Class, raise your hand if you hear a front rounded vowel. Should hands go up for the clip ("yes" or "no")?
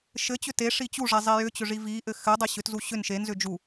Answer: yes